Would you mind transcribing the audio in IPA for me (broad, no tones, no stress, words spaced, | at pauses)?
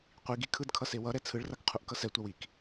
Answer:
qʷiɡi kʰɯdkʰʌ sewʌɾɛ t͡sʰɯɭrak qʰuʔkʌsɛtʷaw ik